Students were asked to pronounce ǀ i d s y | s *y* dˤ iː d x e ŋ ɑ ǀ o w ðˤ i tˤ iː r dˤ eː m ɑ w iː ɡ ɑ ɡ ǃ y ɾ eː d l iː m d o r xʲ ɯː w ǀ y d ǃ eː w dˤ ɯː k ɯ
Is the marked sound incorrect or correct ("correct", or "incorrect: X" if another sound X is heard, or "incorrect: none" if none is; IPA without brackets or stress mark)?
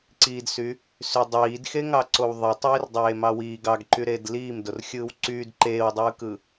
correct